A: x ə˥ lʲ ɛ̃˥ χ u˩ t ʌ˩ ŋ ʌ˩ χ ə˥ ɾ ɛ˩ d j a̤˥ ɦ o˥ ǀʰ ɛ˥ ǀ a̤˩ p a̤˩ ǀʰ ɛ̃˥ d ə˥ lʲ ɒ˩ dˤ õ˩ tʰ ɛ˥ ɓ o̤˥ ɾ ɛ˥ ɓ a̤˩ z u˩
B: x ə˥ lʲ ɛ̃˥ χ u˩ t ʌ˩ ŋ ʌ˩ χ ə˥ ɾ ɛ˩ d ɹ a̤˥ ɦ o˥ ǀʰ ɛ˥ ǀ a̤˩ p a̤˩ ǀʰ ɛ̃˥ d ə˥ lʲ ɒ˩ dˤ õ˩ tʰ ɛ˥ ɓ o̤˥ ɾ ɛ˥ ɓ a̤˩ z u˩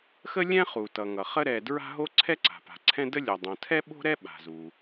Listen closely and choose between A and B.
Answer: B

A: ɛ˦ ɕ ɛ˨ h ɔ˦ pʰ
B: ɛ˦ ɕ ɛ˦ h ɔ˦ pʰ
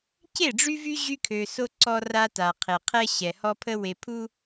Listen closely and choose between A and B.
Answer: A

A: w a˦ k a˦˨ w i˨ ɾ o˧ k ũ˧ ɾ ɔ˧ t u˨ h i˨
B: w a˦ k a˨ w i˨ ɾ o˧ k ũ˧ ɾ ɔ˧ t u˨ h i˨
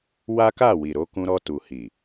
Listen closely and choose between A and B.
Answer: A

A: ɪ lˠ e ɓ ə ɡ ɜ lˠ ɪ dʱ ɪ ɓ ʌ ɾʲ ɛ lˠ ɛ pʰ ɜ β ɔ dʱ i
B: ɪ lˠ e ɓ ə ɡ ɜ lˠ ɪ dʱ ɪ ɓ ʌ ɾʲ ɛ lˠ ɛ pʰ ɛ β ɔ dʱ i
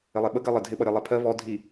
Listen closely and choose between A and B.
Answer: A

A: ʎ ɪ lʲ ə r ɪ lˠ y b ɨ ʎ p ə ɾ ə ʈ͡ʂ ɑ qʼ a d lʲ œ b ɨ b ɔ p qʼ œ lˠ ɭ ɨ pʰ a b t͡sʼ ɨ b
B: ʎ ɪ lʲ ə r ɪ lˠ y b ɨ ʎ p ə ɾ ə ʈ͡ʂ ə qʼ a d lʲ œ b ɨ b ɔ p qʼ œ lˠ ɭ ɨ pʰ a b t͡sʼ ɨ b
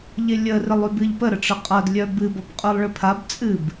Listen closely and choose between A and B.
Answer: B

